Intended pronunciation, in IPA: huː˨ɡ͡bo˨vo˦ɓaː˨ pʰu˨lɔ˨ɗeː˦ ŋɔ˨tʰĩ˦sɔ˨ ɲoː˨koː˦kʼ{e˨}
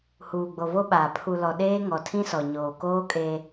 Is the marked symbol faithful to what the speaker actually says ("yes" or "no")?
no